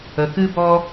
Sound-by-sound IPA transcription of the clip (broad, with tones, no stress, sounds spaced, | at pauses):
ə˨ k ɨ˦ b ɔ˦